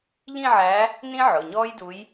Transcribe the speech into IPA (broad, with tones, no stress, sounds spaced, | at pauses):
ʎ ĩ˥˧ ʕ æ˧˥ | n ĩ˥ ʕ ʊ˩˧˩ ɲ ɔː˥ j d u˧˥ j